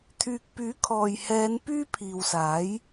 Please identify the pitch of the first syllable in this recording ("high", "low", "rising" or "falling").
low